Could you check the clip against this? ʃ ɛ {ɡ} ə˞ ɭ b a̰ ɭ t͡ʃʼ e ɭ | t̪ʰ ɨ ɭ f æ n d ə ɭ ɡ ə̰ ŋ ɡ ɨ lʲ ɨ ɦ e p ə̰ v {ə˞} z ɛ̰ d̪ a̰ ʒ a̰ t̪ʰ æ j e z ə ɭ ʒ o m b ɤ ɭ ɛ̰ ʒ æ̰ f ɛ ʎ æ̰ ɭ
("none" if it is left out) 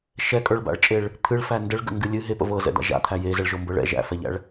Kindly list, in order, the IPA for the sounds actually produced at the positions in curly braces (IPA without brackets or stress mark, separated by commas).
kʼ, ɤ